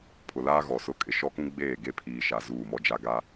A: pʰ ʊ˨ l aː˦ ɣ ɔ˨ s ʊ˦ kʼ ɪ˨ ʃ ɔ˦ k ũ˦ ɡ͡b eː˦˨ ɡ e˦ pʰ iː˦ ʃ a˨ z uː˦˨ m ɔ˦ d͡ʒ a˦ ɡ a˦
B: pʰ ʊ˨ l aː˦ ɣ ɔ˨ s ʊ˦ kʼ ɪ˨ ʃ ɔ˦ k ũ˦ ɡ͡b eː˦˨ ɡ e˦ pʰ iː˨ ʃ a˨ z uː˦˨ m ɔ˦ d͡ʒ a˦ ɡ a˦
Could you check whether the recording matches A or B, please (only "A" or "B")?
B